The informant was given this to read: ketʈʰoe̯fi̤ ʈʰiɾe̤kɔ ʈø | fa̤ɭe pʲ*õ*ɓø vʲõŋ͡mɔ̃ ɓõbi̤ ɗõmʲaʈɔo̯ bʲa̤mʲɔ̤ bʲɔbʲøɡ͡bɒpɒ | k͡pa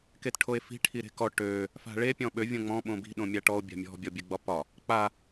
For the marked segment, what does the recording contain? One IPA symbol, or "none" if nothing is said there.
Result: ɔ̃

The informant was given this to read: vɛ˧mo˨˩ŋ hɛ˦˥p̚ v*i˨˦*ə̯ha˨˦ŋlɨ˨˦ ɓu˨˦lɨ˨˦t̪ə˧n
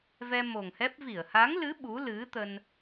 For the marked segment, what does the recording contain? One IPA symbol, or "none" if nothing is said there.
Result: i˧˩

